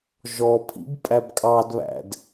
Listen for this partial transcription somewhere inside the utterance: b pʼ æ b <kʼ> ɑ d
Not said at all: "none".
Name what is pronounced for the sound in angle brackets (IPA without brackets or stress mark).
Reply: kʼ